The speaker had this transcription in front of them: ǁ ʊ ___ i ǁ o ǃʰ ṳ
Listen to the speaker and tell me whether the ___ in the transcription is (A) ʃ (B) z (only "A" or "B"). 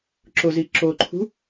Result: B